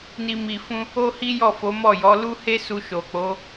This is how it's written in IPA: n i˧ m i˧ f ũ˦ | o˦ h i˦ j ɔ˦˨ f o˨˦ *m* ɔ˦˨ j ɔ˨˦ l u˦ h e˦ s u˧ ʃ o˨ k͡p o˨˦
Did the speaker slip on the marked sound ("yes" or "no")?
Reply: no